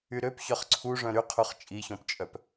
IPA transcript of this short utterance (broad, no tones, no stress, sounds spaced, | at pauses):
y ɾ ø p ç œ χ ǀʰ u ʐ œ̃ ɾ y qʰ u χ t͡ʃʼ i ç ɔ̃ p t͡ʃʼ œ p